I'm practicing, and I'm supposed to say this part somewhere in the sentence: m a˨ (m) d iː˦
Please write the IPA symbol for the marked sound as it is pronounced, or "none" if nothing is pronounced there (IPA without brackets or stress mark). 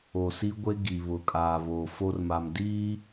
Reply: m